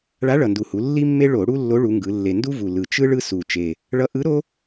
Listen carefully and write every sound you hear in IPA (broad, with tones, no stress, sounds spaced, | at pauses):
ɭ a˧˥ ɭ ʌ˨˩ n d u˨˩ h u˩˧ lː i˥ mː e˥ ɭ o˧˩˧ ɽ u˥ lː o˧˥ ɭ u˩˧ ŋ ɡ ɯ˩˧ lː e˨˩ n d u˥ v u˨˩ l ɯ˨˩ t͡ʃ ɯ˥ ɭ ɯ˥ s u˨˩ t͡ʃ e˨˩ | ɭ ʌ˧˥ ʔ ɯ˧˥ ɾ o˥